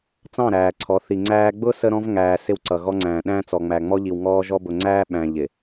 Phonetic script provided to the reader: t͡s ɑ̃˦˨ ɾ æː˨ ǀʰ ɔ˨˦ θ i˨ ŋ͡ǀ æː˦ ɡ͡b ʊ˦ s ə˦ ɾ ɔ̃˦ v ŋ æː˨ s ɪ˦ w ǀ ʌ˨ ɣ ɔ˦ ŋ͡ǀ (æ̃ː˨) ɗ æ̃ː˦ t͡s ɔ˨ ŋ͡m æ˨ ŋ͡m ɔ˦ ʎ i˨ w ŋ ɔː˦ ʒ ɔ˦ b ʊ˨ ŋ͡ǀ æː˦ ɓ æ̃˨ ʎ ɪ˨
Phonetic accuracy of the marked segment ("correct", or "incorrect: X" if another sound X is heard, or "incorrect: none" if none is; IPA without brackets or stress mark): correct